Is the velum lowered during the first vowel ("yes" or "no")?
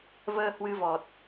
no